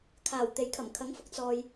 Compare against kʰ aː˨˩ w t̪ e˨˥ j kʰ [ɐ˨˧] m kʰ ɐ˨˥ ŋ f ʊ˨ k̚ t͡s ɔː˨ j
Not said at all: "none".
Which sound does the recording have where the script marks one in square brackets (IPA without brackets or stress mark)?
ɐ˨˩